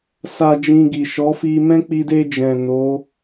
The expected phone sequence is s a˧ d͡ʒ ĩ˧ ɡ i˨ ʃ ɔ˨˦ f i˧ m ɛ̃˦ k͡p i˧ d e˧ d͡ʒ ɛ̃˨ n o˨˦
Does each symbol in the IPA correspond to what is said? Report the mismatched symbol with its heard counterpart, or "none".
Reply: none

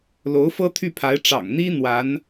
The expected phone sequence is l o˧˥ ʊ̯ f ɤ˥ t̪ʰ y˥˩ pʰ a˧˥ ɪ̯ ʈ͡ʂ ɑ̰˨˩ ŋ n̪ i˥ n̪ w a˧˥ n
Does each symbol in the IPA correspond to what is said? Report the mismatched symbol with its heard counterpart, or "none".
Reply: none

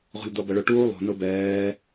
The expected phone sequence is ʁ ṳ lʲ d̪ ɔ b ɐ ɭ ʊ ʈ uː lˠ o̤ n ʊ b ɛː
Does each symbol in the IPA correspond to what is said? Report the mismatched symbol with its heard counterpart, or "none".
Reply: none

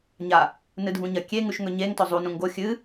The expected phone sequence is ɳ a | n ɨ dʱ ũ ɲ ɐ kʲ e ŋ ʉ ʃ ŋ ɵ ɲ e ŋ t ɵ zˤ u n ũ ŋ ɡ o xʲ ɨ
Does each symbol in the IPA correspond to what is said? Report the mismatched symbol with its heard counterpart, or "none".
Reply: ɳ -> ɲ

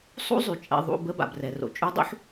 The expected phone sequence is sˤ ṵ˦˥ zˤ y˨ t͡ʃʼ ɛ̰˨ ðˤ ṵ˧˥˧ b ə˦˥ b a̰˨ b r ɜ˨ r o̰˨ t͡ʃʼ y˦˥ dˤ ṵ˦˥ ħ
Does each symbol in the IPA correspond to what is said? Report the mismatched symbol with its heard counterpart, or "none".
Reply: ɜ˨ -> ɛ˨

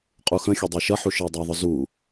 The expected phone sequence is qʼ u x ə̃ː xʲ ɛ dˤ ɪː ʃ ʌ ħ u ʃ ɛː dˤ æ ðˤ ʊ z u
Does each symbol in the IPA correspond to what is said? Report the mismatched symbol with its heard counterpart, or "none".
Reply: ɛː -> ɪː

